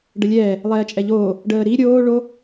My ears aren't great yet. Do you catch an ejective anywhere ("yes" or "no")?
yes